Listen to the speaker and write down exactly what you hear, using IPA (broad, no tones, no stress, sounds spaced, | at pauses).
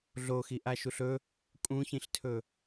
ɮ o x i ʔ a ʃ u ɬ ɵ | kʼ ũ ç ĩ ɬ tʰ ɵ